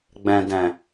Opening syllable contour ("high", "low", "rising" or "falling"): low